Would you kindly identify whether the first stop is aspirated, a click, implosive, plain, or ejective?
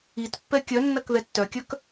plain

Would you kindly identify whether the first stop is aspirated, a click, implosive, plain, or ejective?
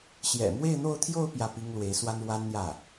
aspirated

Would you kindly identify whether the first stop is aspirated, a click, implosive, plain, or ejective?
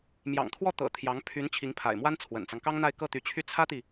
aspirated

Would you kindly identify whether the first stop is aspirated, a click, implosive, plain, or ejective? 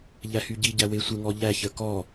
plain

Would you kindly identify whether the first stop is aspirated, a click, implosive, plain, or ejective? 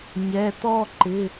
plain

